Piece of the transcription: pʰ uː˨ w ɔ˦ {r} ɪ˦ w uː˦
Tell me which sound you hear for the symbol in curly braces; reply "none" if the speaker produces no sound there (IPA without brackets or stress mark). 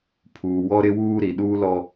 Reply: ɾ